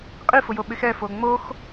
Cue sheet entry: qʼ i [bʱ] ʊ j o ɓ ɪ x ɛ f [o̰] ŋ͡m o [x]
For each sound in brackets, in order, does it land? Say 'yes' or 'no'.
no, no, yes

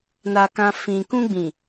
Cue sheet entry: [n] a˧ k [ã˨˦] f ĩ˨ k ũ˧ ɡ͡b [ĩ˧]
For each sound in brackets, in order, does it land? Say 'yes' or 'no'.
yes, no, no

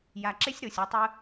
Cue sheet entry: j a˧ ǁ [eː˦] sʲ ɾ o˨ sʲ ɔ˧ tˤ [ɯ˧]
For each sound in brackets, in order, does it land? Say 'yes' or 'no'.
no, yes

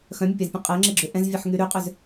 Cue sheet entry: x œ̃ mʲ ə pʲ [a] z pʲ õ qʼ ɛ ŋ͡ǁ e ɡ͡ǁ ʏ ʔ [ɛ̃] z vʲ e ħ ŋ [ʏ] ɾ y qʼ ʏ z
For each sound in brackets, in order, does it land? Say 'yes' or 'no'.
yes, yes, no

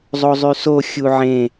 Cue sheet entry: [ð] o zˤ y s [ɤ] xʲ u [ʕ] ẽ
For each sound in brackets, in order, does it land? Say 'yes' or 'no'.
no, no, yes

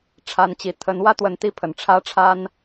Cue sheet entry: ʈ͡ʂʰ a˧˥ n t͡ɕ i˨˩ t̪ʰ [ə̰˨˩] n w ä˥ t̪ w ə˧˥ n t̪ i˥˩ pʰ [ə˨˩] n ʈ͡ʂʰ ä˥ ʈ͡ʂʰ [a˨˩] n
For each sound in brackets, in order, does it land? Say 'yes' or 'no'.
no, yes, no

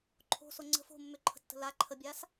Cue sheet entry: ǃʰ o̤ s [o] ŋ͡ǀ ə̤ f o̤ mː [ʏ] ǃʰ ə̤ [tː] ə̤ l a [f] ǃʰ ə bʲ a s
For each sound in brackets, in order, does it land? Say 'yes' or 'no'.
yes, yes, yes, no

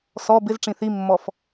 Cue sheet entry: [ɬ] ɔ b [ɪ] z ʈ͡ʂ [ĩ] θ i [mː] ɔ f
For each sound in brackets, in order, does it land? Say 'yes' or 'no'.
no, yes, yes, yes

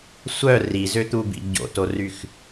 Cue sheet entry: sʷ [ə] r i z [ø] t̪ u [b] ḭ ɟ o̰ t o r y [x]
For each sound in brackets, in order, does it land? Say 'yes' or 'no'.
no, yes, yes, yes

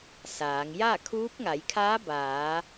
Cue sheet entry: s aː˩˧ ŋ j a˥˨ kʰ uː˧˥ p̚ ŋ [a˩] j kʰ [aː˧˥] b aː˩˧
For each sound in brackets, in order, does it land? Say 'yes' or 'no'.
no, yes

